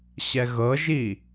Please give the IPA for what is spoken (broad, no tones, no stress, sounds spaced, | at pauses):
ɕ ɛ ɣ ɤ ʒ i